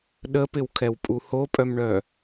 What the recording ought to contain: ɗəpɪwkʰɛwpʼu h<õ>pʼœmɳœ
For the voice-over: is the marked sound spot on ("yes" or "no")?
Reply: no